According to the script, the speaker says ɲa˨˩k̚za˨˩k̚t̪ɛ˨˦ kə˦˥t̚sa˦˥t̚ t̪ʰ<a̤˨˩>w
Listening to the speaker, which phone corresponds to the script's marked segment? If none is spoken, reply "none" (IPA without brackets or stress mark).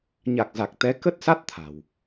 a̤˨˩